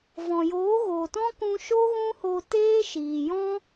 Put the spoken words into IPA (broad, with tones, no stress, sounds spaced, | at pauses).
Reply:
v ɔ̃˨ j oː˨˦ ɣ oː˨ t ɔ̃˦ k ũ˧ ʃ o˦ ɣ ũ˦ h oː˧ t eː˦ ʃ iː˨ j ɔ̃˦